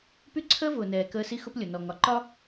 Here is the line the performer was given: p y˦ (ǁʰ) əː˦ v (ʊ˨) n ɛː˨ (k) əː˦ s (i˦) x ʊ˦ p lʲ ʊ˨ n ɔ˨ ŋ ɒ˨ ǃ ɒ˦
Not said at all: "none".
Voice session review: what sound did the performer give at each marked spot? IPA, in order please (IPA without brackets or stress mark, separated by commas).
ǀʰ, ʊː˨, k, i˦